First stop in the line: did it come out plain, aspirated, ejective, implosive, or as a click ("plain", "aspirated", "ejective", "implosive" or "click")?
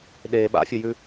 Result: implosive